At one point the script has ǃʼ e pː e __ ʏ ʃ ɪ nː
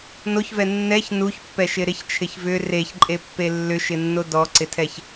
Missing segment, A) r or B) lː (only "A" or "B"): B